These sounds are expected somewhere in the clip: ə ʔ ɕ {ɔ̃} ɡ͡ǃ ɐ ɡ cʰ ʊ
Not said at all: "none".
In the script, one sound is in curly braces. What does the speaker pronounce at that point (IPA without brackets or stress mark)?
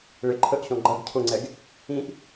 ɔ̃